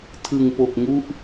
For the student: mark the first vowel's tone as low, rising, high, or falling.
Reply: low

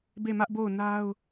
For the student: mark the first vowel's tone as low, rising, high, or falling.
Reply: falling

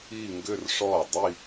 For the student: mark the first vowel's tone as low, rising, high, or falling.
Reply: falling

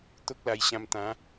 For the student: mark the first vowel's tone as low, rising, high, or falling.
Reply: high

